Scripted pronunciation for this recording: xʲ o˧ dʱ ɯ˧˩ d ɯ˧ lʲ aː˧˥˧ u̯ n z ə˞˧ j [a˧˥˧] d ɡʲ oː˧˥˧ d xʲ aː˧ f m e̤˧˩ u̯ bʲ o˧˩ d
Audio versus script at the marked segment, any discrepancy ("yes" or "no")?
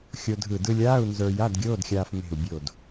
no